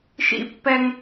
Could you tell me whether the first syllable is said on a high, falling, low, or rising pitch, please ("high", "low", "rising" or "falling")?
high